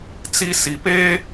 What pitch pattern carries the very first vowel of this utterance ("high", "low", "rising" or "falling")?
high